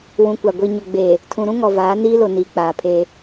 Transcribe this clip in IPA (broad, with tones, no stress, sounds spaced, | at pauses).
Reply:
w ũ˨ kʷ a˨ ɡʷ i˨ ɲ ʊ˨ ɡ͡b eː˨ | tʰ ũ˨ ɾ ũ˦ ŋ ɔ˨ v aː˨˦ n iː˦ l o˨ n iː˨ k͡p aː˨ pʰ eː˦